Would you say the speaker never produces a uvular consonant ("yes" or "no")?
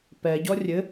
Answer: yes